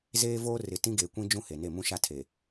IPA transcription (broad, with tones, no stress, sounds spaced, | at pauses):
z eː˦ v oː˦ r ɪ˨ t ĩ˦ ɡ eː˨ kʷ ĩ˦ d͡ʒ ũ˦ h e˨ n e˦˨ m ũ˦ ʃ a˦ tʰ e˨